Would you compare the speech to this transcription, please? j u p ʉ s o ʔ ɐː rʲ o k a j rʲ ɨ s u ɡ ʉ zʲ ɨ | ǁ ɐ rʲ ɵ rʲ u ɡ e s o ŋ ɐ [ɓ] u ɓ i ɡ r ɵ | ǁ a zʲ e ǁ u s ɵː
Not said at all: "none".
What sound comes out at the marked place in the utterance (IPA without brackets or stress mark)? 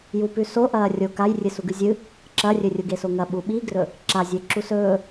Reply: ɓ